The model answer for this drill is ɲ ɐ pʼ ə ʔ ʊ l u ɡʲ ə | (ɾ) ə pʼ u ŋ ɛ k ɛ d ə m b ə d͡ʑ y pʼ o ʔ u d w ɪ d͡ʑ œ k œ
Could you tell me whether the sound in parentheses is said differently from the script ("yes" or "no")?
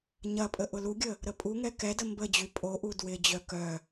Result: no